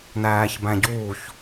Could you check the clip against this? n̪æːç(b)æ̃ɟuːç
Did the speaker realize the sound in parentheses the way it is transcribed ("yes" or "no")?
yes